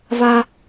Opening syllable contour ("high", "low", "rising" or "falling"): high